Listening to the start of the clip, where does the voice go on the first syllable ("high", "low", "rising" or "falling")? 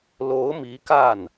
rising